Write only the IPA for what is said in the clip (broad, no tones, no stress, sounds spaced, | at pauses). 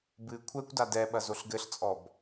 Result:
b ɨ kʷʰ ɛ kʷ d a d ɛ ɓ ɐ z o ɬ ɡ ɘ ɬ t͡sʼ ɔ b